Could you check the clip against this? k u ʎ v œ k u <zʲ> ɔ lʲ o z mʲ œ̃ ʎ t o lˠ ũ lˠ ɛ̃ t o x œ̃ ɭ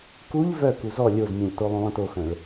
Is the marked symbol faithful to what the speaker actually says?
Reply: no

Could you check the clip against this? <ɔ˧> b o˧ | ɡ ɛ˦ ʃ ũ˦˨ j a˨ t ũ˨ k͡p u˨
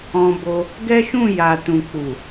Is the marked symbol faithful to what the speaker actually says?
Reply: no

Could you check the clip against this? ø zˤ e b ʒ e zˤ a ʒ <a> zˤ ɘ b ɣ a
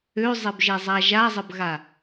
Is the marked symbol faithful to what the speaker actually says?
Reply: yes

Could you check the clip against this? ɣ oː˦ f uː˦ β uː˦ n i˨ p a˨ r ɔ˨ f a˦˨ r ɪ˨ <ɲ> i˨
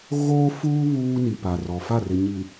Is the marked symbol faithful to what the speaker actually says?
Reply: yes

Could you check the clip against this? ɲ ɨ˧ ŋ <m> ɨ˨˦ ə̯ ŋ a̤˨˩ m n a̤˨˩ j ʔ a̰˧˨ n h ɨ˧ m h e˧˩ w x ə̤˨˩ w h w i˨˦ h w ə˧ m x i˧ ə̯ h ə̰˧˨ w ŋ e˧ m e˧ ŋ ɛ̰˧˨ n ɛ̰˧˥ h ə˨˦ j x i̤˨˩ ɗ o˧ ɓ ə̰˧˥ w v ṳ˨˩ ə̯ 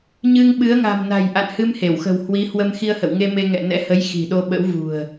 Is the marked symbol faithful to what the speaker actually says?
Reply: no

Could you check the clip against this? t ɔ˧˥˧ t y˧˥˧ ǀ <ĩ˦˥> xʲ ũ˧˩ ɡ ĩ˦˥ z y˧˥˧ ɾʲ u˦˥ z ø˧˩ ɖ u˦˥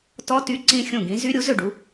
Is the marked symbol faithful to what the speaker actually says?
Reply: yes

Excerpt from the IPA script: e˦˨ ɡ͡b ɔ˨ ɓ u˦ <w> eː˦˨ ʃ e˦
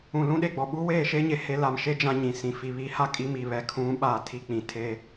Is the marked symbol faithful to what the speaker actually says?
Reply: yes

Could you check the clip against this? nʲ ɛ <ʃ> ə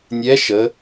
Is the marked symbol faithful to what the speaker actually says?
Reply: yes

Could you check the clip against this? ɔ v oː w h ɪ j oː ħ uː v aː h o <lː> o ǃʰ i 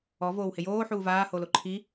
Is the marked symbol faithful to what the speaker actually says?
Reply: no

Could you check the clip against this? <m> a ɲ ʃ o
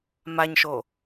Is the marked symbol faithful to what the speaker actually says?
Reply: yes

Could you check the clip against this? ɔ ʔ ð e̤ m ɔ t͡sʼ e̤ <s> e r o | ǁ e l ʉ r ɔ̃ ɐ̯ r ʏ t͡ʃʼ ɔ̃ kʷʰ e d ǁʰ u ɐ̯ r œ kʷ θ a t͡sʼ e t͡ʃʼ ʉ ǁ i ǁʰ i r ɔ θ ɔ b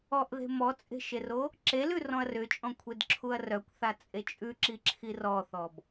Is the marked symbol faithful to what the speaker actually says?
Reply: no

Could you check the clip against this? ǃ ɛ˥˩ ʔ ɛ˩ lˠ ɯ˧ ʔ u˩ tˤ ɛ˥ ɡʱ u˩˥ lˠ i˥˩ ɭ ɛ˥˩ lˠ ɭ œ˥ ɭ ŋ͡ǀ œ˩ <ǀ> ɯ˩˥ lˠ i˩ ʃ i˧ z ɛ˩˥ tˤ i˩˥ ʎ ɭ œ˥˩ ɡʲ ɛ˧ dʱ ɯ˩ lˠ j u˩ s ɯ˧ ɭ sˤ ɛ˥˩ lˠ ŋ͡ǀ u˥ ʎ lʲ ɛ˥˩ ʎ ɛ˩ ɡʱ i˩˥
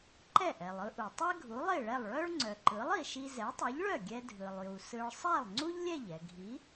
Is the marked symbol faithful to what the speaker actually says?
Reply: no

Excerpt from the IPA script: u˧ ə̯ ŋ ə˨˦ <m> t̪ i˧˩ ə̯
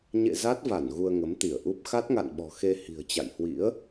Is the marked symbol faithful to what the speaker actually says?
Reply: yes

